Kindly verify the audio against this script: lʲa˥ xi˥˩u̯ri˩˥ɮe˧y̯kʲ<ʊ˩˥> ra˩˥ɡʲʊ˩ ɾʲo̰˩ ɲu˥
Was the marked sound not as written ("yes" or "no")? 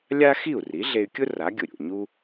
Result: yes